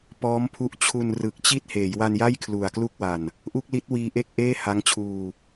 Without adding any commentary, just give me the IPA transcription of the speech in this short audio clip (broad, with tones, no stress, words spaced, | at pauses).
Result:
pɔː˦˥mpʰu˦˥ʔ t͡ɕʰu˧nrɯ˨˩k̚t͡ɕi˥˩t̚ heː˩˦jwa˧nja˥˩j kʰlu˨˩a̯klu˥˩k̚ wa˨˩n | ʔu˥˩k̚li˦˥t̚wiː˧ʔe˥˩k̚ ʔeː˥˩ha˦˥ŋt͡ɕʰuː˧